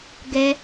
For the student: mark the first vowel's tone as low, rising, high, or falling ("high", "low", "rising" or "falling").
high